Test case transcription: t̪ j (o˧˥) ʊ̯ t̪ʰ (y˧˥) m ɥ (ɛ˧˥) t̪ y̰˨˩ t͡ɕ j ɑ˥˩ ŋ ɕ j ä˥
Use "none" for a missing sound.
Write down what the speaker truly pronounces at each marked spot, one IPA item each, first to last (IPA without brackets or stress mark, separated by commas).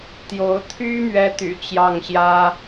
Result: o˧˥, y˥, ɛ˥